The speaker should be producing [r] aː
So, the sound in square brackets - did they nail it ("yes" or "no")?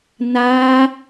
no